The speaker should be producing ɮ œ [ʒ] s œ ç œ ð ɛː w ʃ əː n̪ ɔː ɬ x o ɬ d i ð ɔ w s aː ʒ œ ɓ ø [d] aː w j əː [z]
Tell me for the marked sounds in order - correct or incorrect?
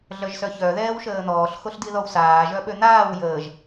correct, incorrect, incorrect

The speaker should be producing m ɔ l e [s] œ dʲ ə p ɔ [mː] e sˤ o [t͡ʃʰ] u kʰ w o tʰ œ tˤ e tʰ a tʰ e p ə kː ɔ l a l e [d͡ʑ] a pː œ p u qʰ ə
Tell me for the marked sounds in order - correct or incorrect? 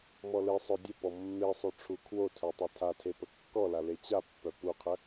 incorrect, correct, incorrect, incorrect

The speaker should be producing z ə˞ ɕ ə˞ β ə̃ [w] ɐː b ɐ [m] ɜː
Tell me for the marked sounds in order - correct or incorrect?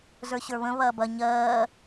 incorrect, incorrect

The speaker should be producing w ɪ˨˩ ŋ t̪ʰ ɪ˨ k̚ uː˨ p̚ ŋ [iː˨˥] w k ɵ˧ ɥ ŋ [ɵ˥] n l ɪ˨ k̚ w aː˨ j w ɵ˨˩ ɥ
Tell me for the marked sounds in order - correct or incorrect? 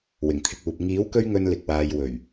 correct, incorrect

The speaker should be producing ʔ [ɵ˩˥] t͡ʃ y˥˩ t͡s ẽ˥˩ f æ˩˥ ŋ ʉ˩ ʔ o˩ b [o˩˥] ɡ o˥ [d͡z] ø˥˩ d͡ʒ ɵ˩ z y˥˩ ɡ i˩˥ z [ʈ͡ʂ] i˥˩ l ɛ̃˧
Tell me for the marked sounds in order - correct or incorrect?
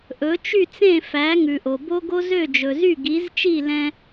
correct, incorrect, incorrect, incorrect

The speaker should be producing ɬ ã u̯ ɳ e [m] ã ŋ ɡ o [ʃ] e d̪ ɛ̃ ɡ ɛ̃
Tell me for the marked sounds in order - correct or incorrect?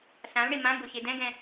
correct, incorrect

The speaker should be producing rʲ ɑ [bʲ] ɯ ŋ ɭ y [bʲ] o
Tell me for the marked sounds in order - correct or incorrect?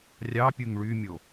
incorrect, incorrect

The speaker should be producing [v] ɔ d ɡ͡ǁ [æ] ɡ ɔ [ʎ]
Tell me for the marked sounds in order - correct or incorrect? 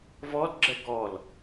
correct, incorrect, incorrect

